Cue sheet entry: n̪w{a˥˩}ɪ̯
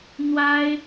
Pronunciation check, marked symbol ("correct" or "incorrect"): incorrect